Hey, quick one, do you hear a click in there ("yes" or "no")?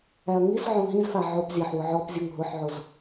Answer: no